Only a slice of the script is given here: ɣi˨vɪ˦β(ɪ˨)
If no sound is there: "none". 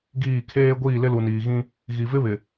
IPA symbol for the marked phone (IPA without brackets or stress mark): ɪ˨